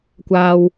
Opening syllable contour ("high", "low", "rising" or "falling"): low